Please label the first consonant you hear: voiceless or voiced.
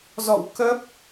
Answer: voiced